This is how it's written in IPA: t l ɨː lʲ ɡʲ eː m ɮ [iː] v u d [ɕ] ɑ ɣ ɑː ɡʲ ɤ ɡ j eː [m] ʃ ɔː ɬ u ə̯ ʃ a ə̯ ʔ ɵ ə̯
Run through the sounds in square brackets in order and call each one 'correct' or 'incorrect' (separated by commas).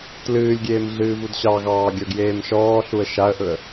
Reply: incorrect, correct, correct